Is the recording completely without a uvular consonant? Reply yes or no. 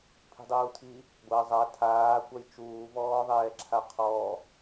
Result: no